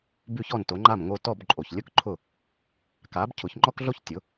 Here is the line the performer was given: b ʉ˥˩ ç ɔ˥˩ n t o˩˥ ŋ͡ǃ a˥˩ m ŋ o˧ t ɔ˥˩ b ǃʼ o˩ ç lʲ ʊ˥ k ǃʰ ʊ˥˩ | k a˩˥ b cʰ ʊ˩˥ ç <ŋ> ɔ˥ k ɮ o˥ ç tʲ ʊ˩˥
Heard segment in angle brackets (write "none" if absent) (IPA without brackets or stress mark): ŋ͡ǃ